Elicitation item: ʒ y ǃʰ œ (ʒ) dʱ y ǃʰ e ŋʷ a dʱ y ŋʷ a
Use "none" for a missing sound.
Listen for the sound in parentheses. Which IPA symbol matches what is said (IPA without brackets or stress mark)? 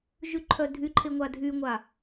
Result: none